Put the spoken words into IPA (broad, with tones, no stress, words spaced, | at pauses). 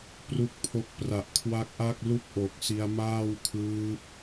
pru˥˩k̚pʰo˥˩k̚ pra˨˩ʔ kʰwa˦˥k̚ʔa˥˩k̚lu˥˩k̚ ʔo˨˩k̚si˧a̯maː˥˩wkʰɯː˦˥p̚